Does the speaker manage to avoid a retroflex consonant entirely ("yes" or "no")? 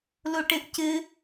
no